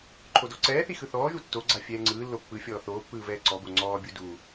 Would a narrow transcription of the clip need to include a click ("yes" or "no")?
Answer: yes